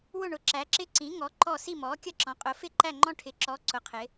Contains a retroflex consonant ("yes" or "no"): yes